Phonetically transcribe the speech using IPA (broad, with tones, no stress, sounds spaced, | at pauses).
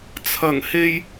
t͡sʰ ɐ˨˩ ŋ h e˨ j